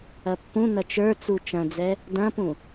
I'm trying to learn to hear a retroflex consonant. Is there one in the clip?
no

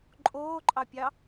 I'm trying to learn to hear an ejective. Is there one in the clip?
yes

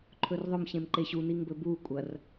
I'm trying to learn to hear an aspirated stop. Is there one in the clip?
yes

